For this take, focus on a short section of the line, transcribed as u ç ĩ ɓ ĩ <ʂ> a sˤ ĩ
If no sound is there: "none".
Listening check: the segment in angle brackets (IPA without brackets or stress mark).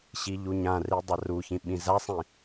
z